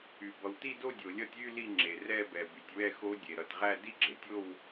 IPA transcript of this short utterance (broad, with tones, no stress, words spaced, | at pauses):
y˩ bʌ˩wti˥˧do˥˧ dʲo˩lʲʌ˥˧tʲ y˥˧ li˥˧ŋ͡ǁe˩ rɛ˥˧bɛ˩ by˩tʲwɛ˥˧xo˦˥ dʲe˩ɾʌ˩tʁæ˥˧ di˥˧ɡ͡ǁe˩tʲo˥˧w